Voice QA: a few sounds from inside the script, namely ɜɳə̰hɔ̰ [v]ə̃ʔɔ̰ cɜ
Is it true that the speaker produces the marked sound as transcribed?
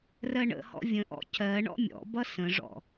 no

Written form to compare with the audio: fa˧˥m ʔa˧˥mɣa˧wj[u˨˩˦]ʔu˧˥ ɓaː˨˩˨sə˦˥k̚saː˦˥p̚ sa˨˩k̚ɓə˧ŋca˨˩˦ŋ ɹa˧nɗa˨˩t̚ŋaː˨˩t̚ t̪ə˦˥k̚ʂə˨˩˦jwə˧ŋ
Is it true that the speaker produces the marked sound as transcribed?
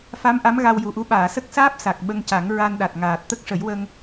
no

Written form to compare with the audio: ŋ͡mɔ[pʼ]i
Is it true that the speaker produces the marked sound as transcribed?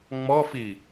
no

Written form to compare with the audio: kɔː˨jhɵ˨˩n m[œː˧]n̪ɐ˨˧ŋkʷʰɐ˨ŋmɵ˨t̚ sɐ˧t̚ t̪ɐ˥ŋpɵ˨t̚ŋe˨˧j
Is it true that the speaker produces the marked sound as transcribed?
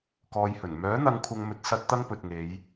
no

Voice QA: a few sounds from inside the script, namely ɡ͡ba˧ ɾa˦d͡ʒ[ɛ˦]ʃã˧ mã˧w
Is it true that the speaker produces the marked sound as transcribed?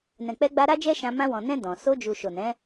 yes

